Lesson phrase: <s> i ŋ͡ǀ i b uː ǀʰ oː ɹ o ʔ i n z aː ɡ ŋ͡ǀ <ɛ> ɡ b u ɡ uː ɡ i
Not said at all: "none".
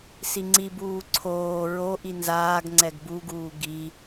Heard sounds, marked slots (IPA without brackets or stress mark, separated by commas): s, ɛ